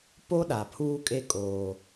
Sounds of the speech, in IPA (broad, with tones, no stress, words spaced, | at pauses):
po˦ɗa˨pʰuː˦kʼe˦ kʼoː˦